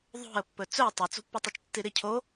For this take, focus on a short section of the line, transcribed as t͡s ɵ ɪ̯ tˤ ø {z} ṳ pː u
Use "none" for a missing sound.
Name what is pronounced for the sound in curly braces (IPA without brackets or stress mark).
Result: t͡s